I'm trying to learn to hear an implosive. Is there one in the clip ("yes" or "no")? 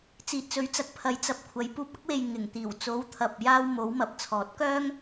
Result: no